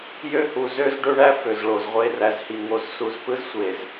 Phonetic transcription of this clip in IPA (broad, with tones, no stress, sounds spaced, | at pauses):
j ø˦ h u˨ z ø˦ z ɖ ø˦ ɳ æ˦ f ø˨ z ɭ o˨ z ʁʷ e˦ r æ˨ z h i˨ ŋ o˦ z s u˦ z p ɯ˦ z sʷ e˨ z